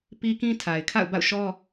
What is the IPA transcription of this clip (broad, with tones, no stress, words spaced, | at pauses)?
pi˦kĩ˦ tʰa˨ɪ̯kʰa̰˦˨ʊ̯ba̰˦˨ʊ̯ʃɔ˦